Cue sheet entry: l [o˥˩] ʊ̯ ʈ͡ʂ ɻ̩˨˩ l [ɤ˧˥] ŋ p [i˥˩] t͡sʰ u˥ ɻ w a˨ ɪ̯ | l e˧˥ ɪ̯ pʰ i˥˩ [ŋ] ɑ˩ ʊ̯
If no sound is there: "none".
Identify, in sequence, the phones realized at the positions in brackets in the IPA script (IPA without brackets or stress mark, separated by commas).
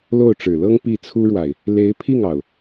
o˥˩, ɤ˥, i˥˩, ŋ